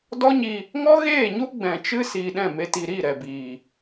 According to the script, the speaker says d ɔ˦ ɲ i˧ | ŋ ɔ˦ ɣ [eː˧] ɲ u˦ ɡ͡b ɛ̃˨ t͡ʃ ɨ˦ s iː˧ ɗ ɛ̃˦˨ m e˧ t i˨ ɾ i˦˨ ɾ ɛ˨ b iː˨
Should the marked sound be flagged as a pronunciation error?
yes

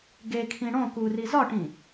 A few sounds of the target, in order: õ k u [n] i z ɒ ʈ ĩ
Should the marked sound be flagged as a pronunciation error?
yes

